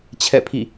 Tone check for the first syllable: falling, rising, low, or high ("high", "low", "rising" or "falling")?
falling